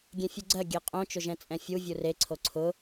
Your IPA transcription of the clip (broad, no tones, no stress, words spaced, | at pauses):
ɡʲẽfʲuɡ͡ǀɜ ɡʲeqʼõ t͡ʃʊʒɛ̃t͡sʼɛ̃fʲu vʲure ǀʰoǀʰʊ